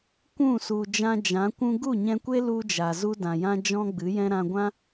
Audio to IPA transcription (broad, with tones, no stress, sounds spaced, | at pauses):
kʷ ũ˦˨ s u˨ d͡ʒ ã˧ d͡ʒ ã˨˦ kʷ ũ˧ ɡ u˦˨ ɲ ɛ̃˧ kʷ e˦ l u˦ d͡ʒ a˨ z u˦ d ã˨ j ã˦ d͡ʒ ɔ̃˦ ɡ͡b ɨ˨˦ j ɛ̃˦ ɾ ã˧ ɡʷ ã˦